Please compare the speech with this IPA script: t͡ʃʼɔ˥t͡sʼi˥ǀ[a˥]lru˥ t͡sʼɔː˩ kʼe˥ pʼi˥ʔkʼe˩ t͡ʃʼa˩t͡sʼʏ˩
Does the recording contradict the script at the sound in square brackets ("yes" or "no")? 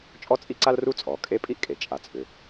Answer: no